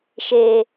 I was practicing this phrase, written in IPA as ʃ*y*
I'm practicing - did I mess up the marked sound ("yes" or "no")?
yes